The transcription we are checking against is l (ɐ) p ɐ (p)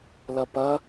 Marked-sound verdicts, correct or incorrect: correct, incorrect

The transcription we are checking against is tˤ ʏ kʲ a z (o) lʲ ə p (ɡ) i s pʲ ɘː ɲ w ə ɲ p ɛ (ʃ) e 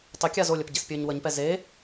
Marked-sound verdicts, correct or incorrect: correct, incorrect, incorrect

